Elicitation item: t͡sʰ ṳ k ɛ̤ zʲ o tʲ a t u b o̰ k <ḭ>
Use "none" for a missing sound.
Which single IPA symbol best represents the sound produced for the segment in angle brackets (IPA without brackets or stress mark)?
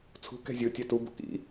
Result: ḭ